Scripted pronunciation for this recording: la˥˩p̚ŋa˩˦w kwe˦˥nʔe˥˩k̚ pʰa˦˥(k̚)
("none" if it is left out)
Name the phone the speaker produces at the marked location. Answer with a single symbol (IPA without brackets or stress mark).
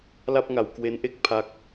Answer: k̚